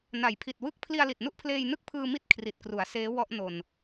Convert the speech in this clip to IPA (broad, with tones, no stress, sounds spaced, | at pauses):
n a˩˦ j pʰ i˨˩ t̚ w ɯ˥˩ k̚ pʰ l i˧ a̯ l i˨˩ t̚ n u˥˩ ʔ pʰ l eː˧ j n ɯ˥˩ k̚ pʰ ɯː˧ m i˥˩ t̚ kʰ r i˨˩ t̚ k r u˩˦ a̯ s eː˦˥ w ɔ˥˩ ʔ n o˧ n